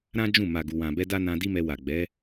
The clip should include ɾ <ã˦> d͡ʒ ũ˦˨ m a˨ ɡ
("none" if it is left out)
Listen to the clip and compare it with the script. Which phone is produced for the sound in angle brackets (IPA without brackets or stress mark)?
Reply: ã˦